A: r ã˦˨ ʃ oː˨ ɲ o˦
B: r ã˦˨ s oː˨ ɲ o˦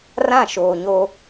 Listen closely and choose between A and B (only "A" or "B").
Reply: A